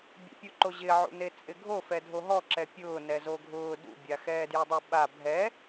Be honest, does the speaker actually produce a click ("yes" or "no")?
yes